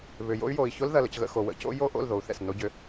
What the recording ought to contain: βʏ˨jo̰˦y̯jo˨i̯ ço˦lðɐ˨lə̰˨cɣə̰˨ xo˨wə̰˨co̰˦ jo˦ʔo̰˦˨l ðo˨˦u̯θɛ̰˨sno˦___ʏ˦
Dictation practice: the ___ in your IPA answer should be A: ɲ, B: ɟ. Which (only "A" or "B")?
B